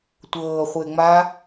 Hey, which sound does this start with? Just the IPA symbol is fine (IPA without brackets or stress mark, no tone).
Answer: tʷ